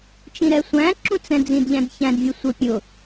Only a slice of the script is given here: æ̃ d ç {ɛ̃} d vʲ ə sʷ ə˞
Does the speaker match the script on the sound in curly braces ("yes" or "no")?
no